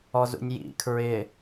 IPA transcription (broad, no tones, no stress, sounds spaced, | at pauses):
ɔ z ṵ nʲ j ḭ kʰ ɹ ɪ